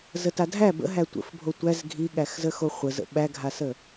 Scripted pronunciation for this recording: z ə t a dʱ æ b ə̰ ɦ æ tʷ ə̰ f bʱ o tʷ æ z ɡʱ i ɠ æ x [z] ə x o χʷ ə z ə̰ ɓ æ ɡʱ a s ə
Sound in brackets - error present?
no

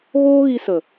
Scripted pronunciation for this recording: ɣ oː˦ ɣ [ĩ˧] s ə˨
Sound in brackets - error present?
yes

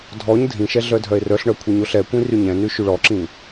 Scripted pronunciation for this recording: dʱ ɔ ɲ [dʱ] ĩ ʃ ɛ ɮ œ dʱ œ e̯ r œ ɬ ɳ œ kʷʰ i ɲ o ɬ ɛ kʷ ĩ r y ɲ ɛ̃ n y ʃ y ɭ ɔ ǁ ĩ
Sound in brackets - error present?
no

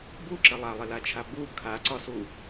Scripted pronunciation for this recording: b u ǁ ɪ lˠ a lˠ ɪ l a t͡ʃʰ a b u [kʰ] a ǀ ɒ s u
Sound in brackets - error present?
no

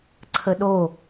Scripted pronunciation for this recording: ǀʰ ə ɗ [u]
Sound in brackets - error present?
yes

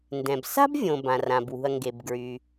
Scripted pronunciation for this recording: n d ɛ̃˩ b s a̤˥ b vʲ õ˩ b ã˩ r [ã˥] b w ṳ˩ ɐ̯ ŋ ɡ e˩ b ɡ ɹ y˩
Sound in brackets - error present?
yes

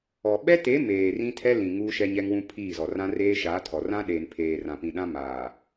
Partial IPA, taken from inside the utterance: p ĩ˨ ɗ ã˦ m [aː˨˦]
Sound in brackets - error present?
yes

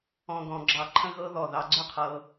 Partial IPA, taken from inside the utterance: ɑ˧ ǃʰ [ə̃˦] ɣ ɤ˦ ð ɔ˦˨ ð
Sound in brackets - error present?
no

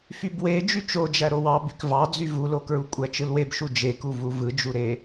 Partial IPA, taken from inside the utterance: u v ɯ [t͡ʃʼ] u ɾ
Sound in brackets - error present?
yes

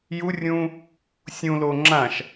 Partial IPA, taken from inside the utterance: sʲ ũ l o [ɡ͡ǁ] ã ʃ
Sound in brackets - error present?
yes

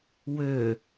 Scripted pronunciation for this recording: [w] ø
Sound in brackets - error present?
no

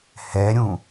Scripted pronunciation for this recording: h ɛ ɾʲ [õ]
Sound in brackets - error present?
yes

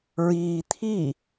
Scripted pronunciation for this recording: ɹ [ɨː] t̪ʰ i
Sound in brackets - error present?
yes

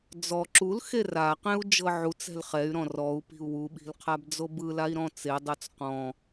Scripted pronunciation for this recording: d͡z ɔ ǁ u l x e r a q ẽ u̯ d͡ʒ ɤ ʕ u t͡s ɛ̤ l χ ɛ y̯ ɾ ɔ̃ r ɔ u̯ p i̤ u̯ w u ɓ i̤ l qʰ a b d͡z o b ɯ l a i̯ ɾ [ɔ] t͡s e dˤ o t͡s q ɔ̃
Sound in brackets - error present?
yes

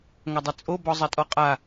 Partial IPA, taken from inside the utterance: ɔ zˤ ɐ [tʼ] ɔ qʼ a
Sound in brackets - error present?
no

